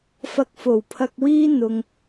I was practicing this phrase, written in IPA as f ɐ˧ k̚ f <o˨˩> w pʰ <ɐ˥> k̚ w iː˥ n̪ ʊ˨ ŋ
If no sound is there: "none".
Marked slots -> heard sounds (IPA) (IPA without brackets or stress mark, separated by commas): o˨˩, ɐ˧